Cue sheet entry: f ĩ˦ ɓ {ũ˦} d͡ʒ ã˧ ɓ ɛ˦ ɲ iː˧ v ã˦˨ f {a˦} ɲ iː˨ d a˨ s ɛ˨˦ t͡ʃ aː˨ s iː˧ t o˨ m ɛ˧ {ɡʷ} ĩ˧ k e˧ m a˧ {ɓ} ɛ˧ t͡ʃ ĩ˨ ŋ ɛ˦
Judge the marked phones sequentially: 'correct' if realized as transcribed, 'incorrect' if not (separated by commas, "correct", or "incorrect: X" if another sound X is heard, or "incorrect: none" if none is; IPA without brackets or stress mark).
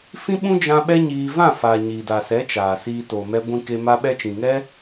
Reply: correct, incorrect: a˨, correct, correct